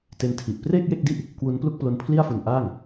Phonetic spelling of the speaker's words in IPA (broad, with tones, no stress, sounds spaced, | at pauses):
t e˦˥ n tʰ i˨˩ ʔ p r eː˥˩ k̚ j e˥˩ k̚ d i˥˩ ʔ | k w u˦˥ n p l u˥˩ k̚ p l o˦˥ n pʰ l i˥˩ a̯ f u˧ n ʔ aː˥˩ ŋ